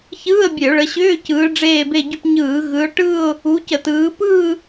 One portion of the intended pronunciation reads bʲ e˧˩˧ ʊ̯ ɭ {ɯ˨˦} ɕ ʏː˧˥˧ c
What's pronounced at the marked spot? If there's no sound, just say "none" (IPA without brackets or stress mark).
ə˨˦